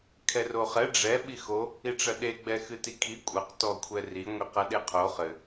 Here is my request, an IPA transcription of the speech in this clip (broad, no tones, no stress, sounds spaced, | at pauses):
kʰ ɛ r o χ ɛ ɖ͡ʐ ɛ ɓ i x o | i ʈ͡ʂ ɐ ɗ e ɡ͡b ɛ x ɨ t i kʰ i kʷʼ ɐ q t ɔ kʷʰ ɛ r i ŋʷ i q ɐ ɗ e qʰ o χ ɘ